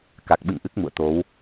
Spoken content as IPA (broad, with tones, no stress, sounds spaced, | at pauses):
k a˨˩ k̚ ɓ ɨ̰˧˨ ŋ ʔ ɨ˦˥ k̚ m ṵ˧˨ ə̯ t̪ o˨˦ w